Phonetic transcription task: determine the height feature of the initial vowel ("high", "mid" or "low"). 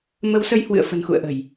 mid